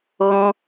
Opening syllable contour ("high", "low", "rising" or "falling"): high